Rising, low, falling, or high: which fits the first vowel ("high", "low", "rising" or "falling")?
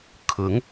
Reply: rising